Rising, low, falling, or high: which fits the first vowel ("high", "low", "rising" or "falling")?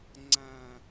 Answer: low